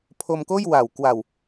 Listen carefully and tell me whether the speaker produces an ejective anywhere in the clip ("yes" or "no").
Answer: no